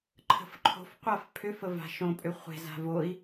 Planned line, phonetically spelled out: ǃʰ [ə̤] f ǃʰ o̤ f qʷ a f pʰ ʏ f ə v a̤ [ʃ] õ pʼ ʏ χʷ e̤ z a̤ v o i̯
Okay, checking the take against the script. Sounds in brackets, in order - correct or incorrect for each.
correct, correct

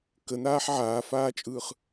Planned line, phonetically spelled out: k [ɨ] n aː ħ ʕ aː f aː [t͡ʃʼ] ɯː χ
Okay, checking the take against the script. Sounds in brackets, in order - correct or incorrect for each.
incorrect, correct

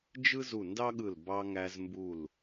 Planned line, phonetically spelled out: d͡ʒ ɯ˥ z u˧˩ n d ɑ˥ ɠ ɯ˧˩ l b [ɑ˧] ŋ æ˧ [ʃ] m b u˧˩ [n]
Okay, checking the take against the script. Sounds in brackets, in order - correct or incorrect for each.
correct, incorrect, incorrect

